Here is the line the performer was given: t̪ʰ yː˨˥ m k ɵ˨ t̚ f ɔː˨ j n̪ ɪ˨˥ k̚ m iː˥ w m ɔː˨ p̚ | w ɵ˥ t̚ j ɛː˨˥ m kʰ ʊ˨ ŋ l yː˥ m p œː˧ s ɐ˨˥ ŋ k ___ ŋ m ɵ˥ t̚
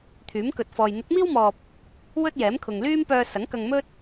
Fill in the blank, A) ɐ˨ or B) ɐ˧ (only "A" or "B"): B